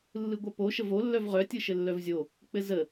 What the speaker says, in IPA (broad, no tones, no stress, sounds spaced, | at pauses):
lː ɯ ɡʷ œ p o ʃ ə v o lː œ v ʁ œ tʲ ɯ ʃ ɘ lː œ v zʲ o | k͡p ɘ z ə